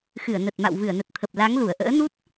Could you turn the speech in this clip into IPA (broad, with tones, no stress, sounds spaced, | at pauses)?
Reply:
x ɨ˧˩ ə̯ n ə˨˩ t̚ m a̰˧˨ w v ɨ˧˩ ə̯ n ə˨˩ t̚ t̪ʰ ə˨˩ p̚ l a˨˦ ŋ l u˧˩ ə̯ ʔ ə̰ː˧˥ n u˦˥ t̚